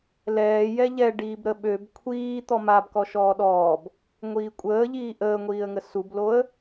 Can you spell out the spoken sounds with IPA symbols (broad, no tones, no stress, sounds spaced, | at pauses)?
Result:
l ɛː j ɛ ʎ ɛ ɖ iː b ɾ ə ɓ ø b kʷʰ iː t̪ ɔ m a b k ɔ ʃ ɔː ɗ ɔː b | ŋʷ iː kʷʼ əː ʎ iː ʔ əː ŋʷ iː ə̯ ŋ ə s u b l o ə̯